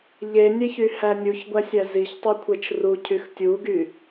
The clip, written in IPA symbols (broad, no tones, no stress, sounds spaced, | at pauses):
ʎ e nʲ e ç y h æ nʲ u ç ɡʷ æ sʲ æ z i ç tˤ u kʷʰ e t͡ʃ r u cʰ y x tʲ u ɡ y